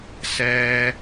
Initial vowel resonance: oral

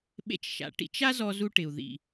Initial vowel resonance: oral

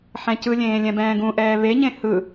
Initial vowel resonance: nasal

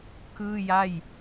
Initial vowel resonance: oral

